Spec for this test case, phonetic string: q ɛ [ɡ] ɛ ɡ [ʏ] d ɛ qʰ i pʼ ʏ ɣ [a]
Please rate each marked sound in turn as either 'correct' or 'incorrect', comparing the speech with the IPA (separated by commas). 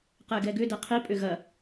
correct, correct, incorrect